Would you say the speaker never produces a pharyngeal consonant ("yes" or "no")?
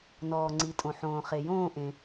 no